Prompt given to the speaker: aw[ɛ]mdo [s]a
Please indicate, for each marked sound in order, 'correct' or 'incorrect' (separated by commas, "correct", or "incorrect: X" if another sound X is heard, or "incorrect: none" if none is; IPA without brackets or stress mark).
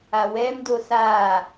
correct, correct